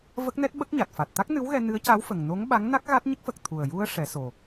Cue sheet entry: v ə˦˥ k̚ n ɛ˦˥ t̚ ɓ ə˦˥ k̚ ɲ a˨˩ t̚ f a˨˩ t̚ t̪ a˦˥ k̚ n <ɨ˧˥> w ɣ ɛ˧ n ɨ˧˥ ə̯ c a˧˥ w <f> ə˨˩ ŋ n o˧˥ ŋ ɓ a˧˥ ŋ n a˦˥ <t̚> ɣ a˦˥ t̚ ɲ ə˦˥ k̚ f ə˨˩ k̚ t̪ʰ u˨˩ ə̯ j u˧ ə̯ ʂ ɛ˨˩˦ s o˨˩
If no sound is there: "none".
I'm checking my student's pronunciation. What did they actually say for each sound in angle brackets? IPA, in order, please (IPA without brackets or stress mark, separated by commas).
ɨ˧˥, f, k̚